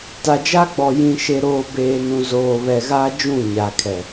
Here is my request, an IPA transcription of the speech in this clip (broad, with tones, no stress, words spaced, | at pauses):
ta˨d͡ʒa˦ɡ͡bɔ˨ jĩ˨ʃe˨ɾoː˨beː˨ nũ˨zoː˨βɛ˨ɣaː˦ d͡ʒũ˦˨ɲa˨kʰɛ˨